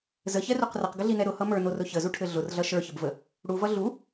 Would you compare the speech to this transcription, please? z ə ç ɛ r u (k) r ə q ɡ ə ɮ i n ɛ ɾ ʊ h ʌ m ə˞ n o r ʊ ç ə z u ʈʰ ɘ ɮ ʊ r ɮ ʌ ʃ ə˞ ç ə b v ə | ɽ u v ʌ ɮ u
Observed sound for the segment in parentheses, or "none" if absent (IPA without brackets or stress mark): q